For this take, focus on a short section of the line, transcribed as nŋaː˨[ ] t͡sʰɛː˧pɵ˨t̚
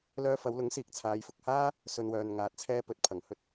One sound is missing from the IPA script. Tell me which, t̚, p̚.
t̚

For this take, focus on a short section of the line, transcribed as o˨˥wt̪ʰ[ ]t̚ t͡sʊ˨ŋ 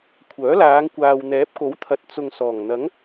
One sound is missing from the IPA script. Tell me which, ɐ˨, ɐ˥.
ɐ˨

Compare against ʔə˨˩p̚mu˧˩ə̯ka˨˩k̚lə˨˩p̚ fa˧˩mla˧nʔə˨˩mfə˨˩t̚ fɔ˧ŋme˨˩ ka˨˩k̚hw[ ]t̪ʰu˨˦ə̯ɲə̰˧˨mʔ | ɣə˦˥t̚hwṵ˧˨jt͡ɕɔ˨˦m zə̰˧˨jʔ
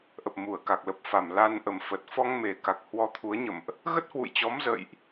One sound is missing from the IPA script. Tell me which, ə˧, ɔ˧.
ɔ˧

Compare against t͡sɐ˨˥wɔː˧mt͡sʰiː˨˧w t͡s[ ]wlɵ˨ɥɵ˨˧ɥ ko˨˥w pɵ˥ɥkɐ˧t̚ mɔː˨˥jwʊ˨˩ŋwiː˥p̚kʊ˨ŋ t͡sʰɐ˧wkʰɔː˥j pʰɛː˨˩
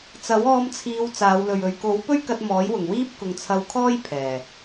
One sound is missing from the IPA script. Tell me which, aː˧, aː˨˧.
aː˨˧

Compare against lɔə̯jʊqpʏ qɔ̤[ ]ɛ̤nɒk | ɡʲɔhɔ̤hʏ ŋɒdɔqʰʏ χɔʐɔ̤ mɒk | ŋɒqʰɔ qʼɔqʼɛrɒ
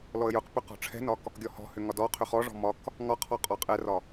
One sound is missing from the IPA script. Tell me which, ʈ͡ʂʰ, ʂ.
ʈ͡ʂʰ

